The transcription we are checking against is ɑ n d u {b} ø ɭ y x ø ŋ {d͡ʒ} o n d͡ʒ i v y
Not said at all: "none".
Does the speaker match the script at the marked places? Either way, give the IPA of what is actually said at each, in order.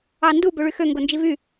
b, ɡ

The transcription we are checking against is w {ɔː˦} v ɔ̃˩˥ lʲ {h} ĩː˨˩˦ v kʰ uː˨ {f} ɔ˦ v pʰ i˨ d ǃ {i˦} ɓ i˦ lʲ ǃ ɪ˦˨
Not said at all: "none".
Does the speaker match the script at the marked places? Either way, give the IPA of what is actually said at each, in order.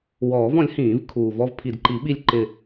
ɔː˨˩˦, h, v, i˨˩˦

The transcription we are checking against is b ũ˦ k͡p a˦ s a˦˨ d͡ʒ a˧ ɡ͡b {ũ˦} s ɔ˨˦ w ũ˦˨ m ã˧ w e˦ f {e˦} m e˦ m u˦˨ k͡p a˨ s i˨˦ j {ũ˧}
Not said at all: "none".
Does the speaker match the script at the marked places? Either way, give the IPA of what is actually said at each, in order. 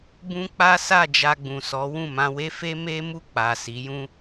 ũ˨, e˦, ũ˦

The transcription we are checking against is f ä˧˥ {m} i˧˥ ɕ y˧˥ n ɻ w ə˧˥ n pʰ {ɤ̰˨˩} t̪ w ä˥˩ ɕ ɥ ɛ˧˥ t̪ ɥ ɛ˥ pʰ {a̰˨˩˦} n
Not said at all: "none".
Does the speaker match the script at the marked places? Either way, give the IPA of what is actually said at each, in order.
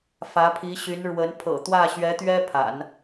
pʰ, ɤ̰˨˩, a̰˨˩˦

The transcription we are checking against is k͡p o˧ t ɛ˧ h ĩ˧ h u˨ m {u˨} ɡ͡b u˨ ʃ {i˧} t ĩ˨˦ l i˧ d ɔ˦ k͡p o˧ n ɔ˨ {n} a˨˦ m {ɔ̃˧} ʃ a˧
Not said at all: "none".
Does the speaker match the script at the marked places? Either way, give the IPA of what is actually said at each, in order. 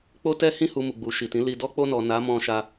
u˨, i˨, n, ɔ̃˧

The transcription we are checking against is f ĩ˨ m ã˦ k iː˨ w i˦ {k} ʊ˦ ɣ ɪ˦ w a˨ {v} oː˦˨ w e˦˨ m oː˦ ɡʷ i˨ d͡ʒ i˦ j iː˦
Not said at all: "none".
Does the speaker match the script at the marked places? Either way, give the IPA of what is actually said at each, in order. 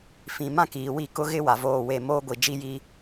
k, v

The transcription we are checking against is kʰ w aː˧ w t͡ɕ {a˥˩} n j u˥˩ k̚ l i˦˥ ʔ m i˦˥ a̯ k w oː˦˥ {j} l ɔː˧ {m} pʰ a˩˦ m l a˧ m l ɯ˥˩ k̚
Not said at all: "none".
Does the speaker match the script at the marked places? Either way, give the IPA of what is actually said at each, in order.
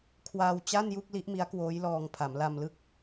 a˥˩, j, ŋ

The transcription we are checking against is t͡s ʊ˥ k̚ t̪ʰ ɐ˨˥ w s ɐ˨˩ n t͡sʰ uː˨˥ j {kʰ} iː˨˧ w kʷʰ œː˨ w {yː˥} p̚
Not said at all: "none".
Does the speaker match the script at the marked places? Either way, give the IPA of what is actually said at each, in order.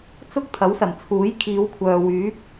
kʰ, yː˨˥

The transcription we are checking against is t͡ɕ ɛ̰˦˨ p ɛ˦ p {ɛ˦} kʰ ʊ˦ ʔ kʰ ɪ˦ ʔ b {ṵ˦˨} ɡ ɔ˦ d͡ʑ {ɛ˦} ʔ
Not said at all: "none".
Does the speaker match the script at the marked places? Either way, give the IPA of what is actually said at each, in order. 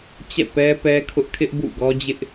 ɛ˦, ṵ˦˨, ɪ˦

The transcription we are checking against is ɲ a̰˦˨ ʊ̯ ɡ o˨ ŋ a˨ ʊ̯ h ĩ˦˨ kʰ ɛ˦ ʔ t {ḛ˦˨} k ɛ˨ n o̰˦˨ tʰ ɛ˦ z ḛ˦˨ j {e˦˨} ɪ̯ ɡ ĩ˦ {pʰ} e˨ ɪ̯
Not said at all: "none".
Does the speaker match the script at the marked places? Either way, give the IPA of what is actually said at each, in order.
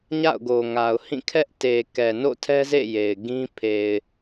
e˨, e˨, pʰ

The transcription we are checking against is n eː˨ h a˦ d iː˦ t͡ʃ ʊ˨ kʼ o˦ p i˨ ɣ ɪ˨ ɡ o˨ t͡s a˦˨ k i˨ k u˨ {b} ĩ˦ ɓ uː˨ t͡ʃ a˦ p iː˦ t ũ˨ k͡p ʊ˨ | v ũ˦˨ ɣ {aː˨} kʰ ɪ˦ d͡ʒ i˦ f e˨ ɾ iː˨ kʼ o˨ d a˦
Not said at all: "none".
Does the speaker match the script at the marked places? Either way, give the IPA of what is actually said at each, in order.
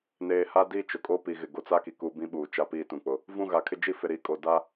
b, aː˨

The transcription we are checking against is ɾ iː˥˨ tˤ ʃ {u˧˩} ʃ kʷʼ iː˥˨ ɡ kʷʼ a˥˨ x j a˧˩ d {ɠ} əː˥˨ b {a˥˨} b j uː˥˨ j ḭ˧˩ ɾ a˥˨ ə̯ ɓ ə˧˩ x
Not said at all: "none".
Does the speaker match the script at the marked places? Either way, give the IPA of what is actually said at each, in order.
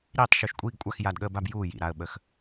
u˧˩, ɠ, a˥˨

